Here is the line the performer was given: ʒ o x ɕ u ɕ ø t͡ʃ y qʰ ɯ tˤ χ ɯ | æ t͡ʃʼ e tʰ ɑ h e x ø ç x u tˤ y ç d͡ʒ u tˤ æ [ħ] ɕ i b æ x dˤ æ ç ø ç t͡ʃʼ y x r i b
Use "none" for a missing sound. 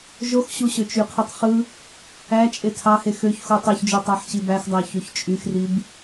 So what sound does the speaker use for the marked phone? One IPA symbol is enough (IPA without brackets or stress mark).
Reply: ħ